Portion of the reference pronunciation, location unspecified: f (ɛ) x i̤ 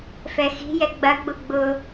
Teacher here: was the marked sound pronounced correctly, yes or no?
yes